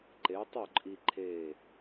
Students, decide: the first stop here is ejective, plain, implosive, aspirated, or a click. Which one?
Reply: click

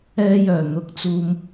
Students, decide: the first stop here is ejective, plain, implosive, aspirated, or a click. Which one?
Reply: plain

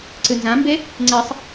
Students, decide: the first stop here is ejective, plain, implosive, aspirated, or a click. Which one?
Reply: click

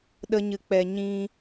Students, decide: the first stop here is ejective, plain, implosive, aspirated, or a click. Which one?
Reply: implosive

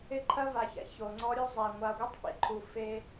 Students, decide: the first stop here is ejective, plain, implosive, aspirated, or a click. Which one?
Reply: click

